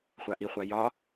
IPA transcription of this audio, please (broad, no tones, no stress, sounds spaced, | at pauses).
χʷ a ʔ i χʷ a j ɒ